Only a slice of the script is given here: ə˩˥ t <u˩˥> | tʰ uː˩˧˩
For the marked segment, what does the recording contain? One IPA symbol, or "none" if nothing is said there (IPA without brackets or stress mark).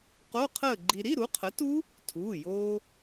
u˦˥